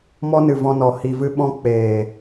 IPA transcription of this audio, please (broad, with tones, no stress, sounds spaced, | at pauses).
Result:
m ɔ˦ n ɨ˨ v ɔ̃˧ n ɔ˨ h i˨ v ɨ˧ ɓ ɔ̃˧ k͡p eː˨